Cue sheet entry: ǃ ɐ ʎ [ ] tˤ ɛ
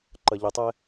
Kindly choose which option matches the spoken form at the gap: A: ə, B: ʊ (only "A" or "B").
A